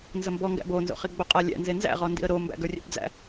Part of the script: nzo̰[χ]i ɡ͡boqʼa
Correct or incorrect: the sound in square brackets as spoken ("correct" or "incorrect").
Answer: correct